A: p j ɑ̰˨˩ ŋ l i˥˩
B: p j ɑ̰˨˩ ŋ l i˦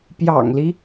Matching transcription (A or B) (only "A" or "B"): B